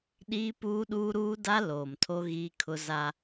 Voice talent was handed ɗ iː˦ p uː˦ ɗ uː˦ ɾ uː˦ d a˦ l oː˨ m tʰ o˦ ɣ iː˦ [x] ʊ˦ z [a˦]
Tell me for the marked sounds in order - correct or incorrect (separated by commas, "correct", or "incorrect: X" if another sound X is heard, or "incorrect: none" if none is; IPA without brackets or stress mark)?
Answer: incorrect: kʰ, correct